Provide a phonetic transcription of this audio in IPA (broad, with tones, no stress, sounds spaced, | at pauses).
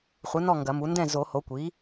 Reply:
χʷ ɨ˩˥ n ɔ˥˩ ŋ ɡ ɐ˨˩˦ m u˩˥ n d ɛ̃˥˩ z o˨˩˦ h o˩˥ kʷ iː˩˥